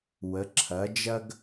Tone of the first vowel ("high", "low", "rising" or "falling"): rising